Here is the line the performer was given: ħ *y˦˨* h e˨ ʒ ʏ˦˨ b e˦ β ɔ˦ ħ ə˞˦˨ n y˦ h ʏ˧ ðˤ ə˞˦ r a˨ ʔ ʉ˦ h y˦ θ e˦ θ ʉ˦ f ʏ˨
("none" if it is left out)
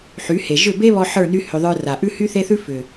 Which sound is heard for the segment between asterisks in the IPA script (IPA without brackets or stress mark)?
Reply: y˨˦